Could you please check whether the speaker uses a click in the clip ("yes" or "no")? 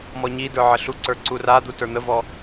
yes